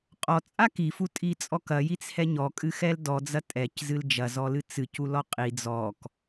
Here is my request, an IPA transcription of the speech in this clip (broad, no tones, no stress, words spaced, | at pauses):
qʼɔt͡sʼa kifutʼit͡sʼɔ kɐjit͡shɛ ɲɔkʼɨxɛl dɔd͡zɐ tʼɛczɨl d͡ʒɐzɔlɨ t͡sɨculɔ qʼi d͡zɔk